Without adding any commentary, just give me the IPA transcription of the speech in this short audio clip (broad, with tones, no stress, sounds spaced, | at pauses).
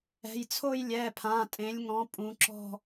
ɛ̤˩˧˩ j t͡sʰ o˥˧ j lʲ ɛ˩˧˩ pʰ ã˩˧˩ tʼ ẽ˨˦ lʲ ŋ ɔ̃˨˦ pʼ ũ˨˦ ǁ ɔ̤˥˧